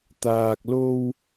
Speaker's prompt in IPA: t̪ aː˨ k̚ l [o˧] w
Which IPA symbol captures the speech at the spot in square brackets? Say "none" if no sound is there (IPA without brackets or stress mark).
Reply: o˧